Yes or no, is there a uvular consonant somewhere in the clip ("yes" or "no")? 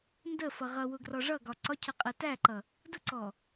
yes